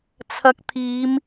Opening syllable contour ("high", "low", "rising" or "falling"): rising